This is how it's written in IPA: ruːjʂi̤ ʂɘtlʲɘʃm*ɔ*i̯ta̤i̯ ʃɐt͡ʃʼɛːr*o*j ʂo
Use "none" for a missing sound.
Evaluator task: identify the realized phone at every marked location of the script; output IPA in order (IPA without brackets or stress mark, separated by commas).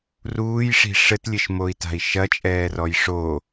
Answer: o, ɔ